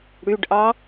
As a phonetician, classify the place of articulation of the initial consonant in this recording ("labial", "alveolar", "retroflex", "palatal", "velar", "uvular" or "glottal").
retroflex